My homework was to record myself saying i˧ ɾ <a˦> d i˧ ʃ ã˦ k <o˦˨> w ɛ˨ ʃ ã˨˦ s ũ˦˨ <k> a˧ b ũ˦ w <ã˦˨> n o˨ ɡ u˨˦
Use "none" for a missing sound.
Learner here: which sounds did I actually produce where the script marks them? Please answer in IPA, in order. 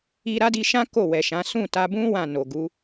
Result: a˦, o˦˨, t, ã˦˨

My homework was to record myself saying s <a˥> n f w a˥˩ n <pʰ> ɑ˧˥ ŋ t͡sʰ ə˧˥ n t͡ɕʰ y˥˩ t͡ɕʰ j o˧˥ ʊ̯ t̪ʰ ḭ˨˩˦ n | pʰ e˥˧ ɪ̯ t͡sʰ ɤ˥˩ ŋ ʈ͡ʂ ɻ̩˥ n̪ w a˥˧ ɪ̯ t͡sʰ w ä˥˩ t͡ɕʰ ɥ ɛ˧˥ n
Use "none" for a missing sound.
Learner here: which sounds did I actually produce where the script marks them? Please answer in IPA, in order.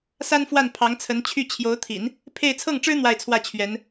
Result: a˥, pʰ

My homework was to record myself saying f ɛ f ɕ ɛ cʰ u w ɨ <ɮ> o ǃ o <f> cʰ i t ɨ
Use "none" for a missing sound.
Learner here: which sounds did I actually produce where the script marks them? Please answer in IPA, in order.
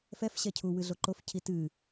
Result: ɮ, f

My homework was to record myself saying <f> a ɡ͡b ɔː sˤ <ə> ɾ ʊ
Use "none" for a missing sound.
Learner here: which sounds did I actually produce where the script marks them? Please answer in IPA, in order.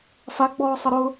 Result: f, ə

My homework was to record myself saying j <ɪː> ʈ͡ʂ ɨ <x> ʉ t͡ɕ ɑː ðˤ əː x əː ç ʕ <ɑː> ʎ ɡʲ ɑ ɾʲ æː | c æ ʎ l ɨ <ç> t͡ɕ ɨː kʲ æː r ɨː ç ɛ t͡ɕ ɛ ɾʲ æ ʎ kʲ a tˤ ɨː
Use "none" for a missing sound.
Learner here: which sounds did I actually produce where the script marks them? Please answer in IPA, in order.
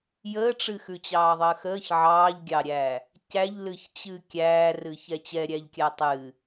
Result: əː, x, ɑː, ç

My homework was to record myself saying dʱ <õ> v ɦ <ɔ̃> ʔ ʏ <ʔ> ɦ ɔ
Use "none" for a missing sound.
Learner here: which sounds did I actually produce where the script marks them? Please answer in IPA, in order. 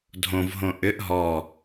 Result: õ, õ, ʔ

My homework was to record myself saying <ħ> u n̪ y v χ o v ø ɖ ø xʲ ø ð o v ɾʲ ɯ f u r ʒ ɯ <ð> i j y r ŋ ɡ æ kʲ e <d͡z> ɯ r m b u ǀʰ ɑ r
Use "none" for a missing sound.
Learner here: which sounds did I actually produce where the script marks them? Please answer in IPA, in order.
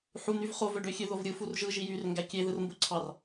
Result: ħ, ʒ, ð

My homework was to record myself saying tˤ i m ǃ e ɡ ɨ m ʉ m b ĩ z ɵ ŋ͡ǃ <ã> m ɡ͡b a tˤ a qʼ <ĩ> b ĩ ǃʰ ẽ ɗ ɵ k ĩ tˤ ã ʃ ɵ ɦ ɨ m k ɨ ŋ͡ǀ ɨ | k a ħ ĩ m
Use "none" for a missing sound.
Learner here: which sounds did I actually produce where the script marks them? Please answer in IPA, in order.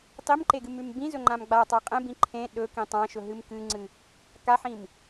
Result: ã, ẽ

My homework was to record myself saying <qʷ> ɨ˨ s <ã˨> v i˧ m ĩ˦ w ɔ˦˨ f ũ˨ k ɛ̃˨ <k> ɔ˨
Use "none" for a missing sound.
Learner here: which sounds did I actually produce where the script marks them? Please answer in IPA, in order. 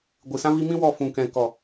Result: ɡʷ, ã˧, k

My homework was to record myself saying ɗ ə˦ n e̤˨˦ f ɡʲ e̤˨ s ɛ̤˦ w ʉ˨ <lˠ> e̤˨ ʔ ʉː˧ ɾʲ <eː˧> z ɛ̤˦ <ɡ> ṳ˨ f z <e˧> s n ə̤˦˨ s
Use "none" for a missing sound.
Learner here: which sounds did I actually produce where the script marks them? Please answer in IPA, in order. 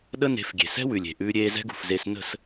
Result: lʲ, eː˧, ɡ, e˧

